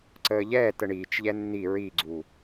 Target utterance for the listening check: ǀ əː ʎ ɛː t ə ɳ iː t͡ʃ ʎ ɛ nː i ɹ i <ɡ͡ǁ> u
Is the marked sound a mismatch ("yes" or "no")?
yes